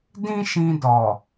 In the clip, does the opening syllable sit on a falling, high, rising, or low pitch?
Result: high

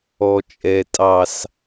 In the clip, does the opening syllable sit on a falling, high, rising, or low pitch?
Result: low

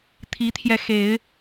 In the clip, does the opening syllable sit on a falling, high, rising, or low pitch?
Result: rising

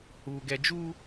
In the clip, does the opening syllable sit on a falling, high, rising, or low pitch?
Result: low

